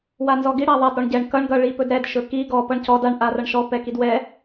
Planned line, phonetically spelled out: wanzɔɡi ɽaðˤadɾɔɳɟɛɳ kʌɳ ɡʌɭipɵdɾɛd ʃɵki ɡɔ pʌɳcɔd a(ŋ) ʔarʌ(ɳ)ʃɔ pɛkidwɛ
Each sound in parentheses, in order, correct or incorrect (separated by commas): incorrect, correct